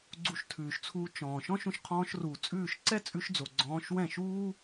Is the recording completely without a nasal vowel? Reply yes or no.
no